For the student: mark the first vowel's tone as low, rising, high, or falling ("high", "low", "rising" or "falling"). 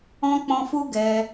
high